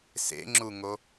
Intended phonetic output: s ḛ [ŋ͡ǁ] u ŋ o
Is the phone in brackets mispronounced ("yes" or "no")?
no